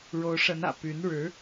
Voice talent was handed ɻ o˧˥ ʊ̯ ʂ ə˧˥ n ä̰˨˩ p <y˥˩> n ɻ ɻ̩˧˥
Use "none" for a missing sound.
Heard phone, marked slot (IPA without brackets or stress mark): y˧˥